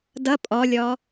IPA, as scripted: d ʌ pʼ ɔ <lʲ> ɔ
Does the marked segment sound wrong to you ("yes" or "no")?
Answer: no